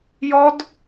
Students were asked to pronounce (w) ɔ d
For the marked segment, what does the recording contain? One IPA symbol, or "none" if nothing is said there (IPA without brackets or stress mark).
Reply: j